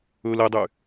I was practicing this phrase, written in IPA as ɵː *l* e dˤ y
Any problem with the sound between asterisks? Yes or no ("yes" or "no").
no